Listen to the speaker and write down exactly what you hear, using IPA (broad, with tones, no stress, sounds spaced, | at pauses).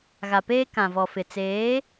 ɣ a˨ p eː˦ k ã˨ v ɔ˨ f ɪ˨ t͡s eː˨˦